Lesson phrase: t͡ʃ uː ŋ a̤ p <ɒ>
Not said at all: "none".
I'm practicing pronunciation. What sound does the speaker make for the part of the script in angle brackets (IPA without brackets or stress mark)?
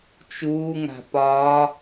ɒː